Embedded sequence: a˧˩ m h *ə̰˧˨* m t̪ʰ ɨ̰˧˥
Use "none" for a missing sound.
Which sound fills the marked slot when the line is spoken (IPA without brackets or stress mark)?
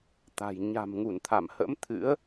ə̰˧˥